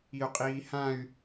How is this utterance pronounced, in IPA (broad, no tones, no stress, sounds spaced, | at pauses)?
i u̯ qʼ iː h ã y̯